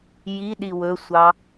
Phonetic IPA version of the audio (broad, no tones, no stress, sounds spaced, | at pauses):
j i ɗ i w ɵ sʷ ɑ